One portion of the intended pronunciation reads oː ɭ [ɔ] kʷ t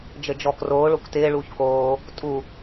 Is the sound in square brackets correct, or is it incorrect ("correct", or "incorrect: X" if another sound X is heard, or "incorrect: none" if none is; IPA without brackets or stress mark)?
incorrect: o